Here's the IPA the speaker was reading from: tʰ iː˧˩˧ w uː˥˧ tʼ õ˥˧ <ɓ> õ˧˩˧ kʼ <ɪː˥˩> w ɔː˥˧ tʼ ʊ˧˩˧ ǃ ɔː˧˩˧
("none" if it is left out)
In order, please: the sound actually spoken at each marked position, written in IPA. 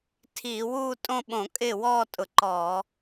ɓ, ɪː˥˩

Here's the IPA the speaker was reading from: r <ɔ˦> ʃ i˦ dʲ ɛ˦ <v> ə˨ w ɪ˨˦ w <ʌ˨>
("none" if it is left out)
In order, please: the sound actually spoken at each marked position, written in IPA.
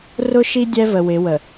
ʊ˦, v, ə˨

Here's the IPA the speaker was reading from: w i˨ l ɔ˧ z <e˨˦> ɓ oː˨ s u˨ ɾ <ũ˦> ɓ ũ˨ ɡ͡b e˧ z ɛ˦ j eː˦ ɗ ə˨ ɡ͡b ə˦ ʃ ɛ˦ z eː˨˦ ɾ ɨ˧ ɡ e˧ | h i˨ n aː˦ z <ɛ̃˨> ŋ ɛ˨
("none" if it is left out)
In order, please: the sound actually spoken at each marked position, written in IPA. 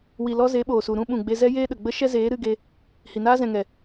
e˨˦, ũ˦, ɛ̃˨

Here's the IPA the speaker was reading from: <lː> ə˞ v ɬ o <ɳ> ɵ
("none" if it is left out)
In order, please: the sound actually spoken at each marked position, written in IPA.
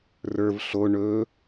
r, ɳ

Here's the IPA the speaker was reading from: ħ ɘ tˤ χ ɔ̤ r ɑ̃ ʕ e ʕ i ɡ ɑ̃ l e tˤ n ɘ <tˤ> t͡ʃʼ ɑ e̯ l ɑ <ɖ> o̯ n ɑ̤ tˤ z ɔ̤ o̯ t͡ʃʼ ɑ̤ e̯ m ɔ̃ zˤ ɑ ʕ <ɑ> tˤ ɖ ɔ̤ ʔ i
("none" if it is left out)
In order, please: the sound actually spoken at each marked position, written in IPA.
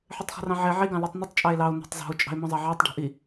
tˤ, none, ɑ

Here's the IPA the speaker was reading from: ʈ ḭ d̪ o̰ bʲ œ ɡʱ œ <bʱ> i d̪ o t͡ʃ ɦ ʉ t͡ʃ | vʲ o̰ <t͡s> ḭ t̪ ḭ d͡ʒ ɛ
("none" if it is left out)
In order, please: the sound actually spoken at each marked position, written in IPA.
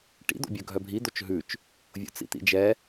bʱ, t͡s

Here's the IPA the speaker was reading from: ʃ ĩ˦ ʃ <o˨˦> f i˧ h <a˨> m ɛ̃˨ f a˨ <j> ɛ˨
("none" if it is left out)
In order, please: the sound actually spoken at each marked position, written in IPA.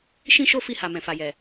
o˦, a˨, j

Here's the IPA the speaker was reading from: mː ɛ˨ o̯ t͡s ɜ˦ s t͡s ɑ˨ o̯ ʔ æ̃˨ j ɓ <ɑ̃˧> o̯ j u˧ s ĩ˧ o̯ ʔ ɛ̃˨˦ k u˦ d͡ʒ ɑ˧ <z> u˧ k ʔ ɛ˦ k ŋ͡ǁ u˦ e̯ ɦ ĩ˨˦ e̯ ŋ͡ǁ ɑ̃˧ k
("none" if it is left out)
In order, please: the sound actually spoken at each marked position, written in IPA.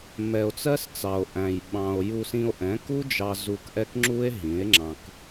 ɑ̃˧, z

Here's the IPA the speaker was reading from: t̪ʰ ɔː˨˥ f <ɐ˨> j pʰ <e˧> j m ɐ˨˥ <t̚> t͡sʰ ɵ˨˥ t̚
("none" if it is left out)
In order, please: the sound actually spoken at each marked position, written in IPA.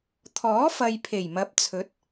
ɐ˨, e˨˩, p̚

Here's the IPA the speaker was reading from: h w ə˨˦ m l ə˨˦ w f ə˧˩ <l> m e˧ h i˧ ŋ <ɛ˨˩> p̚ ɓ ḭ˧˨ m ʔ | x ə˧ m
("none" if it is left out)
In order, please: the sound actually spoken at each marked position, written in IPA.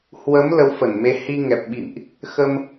n, ɛ˨˩

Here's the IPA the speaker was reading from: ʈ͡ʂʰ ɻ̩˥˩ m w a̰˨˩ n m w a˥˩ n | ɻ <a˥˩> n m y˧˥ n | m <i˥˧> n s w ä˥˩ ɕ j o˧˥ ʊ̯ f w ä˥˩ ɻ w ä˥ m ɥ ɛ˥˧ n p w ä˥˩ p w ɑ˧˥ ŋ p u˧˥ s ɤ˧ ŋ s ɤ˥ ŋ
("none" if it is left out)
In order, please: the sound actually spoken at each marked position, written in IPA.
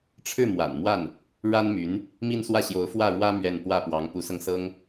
a˥, i˥˧

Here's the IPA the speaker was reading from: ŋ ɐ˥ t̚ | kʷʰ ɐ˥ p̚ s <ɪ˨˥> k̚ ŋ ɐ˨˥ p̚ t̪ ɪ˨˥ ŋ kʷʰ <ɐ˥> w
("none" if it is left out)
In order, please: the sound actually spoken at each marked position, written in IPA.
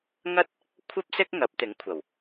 ɪ˥, ɐ˨˩

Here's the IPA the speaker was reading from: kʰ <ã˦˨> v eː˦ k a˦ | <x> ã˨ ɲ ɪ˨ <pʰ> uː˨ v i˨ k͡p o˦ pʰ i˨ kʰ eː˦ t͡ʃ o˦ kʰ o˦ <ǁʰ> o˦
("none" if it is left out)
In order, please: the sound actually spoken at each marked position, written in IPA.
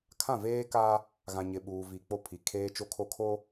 ã˦˨, ɣ, ɓ, kʰ

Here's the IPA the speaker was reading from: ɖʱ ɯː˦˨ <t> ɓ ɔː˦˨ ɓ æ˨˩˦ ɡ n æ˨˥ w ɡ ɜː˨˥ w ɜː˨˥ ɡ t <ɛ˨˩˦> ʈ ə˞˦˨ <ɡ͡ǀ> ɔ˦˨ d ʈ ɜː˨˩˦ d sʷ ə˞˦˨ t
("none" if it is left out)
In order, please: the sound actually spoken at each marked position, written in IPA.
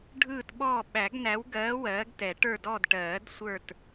t, ɛ˨˩˦, d

